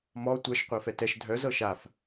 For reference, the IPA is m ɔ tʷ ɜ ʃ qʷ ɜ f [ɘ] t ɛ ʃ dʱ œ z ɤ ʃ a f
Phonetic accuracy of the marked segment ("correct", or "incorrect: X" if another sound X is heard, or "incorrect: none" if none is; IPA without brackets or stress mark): incorrect: ɛ